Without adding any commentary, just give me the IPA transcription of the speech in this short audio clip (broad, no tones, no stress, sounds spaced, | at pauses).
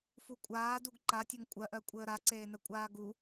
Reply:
f u kʷʼ aː d u ɡ ǃ a tʲ ə ŋ kʷʼ ɜ ʔ ɜ kʷʼ əː ɾ a ǀ eː n ə kʷʼ aː ɡ u